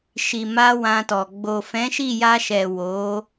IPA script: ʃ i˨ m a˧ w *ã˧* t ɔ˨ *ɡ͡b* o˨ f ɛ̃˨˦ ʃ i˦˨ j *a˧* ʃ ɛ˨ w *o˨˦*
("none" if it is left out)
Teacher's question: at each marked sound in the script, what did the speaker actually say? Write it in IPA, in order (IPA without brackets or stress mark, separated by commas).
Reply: ã˧, ɡ͡b, a˧, o˨˦